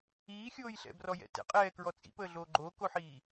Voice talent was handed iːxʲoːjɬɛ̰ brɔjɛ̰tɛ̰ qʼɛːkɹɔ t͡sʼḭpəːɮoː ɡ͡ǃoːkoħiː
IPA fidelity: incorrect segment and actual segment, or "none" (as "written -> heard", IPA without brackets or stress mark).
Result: none